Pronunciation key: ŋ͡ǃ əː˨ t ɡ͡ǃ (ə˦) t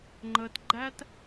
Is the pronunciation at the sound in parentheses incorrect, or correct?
incorrect: æ˦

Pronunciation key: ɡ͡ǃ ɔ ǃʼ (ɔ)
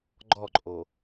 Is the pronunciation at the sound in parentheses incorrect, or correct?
incorrect: o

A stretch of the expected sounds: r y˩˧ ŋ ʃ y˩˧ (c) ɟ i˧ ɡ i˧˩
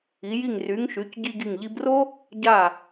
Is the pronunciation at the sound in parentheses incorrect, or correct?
correct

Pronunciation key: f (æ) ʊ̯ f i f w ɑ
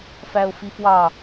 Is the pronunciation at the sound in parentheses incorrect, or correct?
correct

